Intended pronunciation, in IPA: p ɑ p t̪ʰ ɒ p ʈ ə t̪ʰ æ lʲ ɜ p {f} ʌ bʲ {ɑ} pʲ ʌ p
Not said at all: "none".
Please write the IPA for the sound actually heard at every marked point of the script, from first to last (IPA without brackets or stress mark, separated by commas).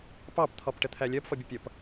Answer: f, ə